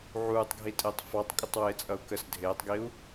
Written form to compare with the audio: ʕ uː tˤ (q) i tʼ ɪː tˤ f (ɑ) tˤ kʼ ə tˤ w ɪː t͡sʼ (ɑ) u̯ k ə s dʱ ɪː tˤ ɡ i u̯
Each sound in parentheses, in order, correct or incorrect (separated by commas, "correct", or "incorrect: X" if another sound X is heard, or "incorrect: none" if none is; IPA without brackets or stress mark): incorrect: ɡʱ, correct, incorrect: ʌ